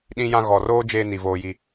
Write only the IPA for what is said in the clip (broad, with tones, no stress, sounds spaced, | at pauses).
ɗ ĩ˦ j ã˦ ɣ ɔ˨ r oː˦ d͡ʒ eː˦ n i˨ v oː˦ j i˦